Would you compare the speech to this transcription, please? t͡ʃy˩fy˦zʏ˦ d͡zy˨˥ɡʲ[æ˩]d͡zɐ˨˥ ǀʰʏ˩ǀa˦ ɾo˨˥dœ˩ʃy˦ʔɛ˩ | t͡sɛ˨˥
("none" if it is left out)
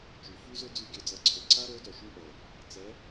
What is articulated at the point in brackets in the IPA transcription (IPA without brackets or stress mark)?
œ˩